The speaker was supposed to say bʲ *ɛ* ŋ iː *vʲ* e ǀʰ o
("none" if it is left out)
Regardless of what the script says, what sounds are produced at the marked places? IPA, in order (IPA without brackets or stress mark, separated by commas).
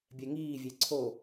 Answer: ɛ, vʲ